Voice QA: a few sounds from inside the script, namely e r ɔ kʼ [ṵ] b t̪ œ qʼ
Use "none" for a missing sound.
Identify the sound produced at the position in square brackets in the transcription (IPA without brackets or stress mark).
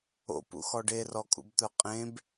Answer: ṵ